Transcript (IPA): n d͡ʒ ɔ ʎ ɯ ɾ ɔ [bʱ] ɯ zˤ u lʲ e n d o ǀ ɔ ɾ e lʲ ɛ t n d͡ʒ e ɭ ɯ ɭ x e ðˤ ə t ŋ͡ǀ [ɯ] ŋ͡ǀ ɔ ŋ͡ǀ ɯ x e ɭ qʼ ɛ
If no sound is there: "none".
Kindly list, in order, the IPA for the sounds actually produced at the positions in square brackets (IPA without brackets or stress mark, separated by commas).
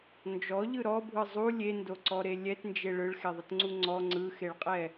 bʱ, u